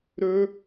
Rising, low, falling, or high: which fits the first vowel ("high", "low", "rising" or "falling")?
high